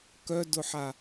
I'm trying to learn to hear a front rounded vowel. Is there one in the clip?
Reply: yes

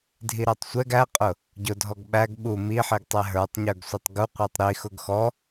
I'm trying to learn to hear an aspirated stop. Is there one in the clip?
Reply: no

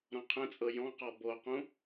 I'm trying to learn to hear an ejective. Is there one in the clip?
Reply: yes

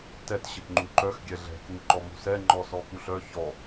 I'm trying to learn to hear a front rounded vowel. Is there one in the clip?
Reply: yes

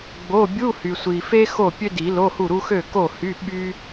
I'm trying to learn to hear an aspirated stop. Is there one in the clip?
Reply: no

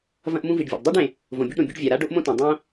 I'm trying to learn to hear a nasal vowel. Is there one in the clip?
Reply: yes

